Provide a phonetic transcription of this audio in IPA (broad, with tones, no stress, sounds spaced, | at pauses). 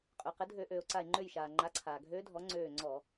qʼ ø˩ q ɘ˩˥ dʱ ø˧˩˧ ʔ øː˩ o̯ ǀ a˧˩ e̯ ŋ͡ǃ ø˧˩ j ʃ aː˩ ŋ͡ǃ a˩˥ ǀʰ aː˩ ɡʱ øː˧˥ dʱ ɔ˩˥ ŋ͡ǀ øː˧˩ ŋ͡ǀ ɔ˧˩˧